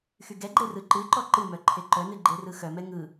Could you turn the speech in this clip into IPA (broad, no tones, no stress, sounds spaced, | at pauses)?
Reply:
x y ɡ ɛ ɡ͡ǃ e r ɯ ǃ ɨ ǃ ɔ ǃ ɨ m œ ǃʰ e ǃ œ n ɨ ɡ͡ǃ e r ɯ x œ m ɛ ŋ ɯ